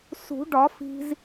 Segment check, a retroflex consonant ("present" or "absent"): present